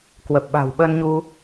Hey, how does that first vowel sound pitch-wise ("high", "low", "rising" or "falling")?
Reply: low